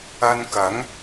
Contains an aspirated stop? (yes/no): no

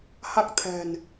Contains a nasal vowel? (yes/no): no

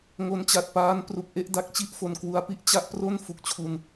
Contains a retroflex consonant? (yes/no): no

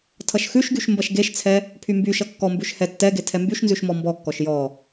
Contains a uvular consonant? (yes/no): no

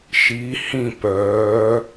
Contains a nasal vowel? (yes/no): yes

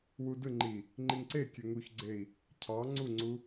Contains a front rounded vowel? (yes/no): yes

